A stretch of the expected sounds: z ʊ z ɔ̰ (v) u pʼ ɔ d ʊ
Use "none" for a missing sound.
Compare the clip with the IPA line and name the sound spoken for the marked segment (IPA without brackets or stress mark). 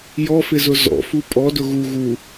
f